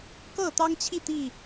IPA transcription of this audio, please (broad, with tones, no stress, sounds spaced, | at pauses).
k ɤ˥˨ t̪ ɑ˦ ŋ t͡ɕʰ i˥˨ t̪ i˥˨